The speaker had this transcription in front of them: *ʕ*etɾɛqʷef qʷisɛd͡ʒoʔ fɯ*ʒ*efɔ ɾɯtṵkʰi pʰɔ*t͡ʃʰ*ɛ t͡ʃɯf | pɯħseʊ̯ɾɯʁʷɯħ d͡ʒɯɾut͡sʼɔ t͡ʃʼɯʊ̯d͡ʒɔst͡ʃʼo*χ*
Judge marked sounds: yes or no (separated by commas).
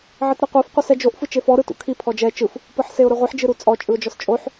yes, no, no, no